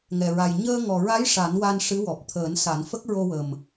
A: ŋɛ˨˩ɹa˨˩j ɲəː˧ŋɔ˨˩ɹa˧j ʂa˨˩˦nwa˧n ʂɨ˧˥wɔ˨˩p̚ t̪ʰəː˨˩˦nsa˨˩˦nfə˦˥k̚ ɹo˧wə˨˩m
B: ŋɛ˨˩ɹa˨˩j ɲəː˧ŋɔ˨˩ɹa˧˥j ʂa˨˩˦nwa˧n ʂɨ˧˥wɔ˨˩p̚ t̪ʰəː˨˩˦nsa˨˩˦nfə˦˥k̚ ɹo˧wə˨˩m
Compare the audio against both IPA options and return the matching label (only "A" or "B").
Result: B